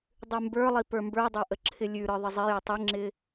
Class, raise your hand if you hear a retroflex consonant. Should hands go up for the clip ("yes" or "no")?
no